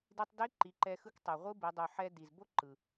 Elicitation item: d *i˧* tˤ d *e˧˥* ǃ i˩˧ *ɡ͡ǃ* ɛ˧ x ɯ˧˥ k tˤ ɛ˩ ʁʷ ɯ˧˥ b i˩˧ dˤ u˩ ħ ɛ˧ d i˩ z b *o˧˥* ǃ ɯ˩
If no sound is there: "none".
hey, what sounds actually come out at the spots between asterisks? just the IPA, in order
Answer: i˧, e˧˥, ǃ, o˧˥

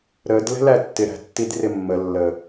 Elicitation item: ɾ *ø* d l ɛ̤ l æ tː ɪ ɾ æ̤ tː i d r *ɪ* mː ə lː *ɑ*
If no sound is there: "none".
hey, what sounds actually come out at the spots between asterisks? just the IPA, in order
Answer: ə, ɪ, ə

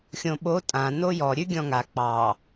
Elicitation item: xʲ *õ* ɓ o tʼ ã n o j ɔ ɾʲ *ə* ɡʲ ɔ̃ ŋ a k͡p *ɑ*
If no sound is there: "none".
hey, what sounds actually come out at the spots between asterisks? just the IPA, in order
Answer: õ, ʉ, ɑ

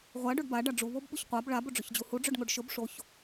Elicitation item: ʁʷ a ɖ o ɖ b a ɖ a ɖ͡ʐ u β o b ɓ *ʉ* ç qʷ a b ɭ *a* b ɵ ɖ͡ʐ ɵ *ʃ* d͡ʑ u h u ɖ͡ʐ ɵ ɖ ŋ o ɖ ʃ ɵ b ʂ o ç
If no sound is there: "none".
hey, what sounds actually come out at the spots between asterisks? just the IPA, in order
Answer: u, a, ç

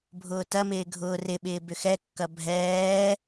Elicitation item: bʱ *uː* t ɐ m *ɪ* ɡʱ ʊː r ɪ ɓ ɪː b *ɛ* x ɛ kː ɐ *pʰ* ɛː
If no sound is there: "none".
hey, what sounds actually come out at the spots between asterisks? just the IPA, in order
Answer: ʊː, ɪː, ʏ, bʱ

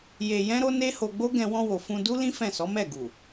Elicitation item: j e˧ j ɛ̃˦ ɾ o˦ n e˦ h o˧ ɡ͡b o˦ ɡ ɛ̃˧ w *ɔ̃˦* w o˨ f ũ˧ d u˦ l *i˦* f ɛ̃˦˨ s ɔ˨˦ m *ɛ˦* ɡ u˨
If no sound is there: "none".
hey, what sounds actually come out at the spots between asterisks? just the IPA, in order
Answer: ɔ̃˧, ĩ˦, ɛ˦˨

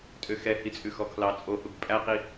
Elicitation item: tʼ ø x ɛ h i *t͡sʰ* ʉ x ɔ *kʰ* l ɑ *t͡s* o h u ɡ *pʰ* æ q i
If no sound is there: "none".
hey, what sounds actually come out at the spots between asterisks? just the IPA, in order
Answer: t͡sʼ, kʰ, t͡sʼ, pʼ

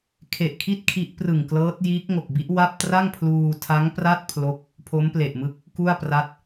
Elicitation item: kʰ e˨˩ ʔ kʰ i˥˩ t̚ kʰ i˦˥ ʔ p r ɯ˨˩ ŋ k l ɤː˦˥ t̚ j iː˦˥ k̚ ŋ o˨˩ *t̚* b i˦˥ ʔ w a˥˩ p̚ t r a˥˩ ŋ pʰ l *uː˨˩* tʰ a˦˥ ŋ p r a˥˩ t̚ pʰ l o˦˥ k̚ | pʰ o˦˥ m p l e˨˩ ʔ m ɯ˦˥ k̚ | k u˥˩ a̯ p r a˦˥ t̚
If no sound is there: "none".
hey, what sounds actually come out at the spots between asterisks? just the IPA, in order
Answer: k̚, uː˧

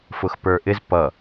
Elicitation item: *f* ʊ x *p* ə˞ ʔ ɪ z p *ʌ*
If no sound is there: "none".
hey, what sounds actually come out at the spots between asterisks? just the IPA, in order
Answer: f, p, ʌ

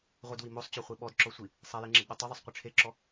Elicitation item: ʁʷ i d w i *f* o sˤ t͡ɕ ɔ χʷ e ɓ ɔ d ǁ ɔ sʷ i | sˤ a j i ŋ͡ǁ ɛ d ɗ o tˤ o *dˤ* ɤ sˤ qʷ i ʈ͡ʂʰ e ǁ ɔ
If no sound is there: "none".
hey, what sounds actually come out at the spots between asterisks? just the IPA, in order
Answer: m, ðˤ

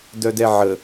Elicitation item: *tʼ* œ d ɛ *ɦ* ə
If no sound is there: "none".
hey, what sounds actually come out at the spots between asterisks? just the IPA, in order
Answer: d, ʕ

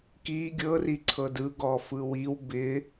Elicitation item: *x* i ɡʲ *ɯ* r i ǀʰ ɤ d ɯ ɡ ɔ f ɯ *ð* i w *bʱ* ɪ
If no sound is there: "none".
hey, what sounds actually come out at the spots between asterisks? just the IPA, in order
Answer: k, ɤ, w, b

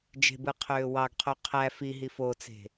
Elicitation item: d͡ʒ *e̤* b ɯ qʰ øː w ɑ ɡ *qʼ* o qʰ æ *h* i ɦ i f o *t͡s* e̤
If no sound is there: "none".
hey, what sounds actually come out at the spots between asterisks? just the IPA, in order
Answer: e̤, qʰ, f, t͡s

